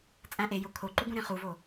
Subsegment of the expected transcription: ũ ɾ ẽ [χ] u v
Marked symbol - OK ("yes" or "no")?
yes